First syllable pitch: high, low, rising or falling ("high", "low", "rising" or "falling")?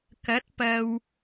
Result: rising